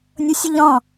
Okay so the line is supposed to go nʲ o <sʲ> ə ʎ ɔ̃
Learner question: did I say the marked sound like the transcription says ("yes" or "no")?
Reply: yes